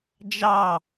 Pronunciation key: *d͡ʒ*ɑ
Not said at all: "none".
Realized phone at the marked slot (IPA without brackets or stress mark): d͡ʒ